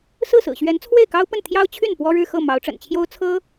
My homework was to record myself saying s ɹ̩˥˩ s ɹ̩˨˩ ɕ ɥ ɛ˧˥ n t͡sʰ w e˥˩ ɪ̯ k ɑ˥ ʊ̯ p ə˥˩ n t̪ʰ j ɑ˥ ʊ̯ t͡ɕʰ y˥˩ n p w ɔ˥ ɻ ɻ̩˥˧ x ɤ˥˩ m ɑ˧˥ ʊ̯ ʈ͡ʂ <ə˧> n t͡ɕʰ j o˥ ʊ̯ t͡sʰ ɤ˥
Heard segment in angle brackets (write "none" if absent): ə̰˨˩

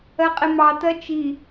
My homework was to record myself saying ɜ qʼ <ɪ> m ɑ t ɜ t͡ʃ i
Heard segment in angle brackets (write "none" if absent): ɪ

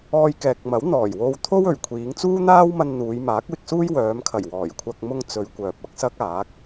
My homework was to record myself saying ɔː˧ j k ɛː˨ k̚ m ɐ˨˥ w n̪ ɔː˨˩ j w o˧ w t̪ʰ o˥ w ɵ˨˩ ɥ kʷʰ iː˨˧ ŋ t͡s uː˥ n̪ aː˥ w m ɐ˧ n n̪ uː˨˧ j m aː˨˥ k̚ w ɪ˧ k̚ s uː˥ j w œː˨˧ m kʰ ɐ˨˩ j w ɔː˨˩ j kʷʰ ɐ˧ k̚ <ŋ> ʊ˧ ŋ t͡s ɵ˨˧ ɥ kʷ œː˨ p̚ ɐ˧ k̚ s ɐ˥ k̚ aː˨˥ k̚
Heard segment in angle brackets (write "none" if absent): m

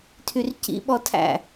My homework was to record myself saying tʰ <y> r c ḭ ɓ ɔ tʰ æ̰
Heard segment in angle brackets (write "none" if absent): y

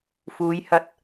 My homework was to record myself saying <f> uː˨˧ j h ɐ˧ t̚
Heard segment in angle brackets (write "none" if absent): f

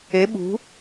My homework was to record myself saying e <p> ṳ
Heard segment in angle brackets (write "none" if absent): ɓ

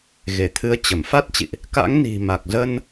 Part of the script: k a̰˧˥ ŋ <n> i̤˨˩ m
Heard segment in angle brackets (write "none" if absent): n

